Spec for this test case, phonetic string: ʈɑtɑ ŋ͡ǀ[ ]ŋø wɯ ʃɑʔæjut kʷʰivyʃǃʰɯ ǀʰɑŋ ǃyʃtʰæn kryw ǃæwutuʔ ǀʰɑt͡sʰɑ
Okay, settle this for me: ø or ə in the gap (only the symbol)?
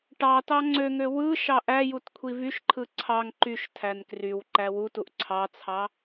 ø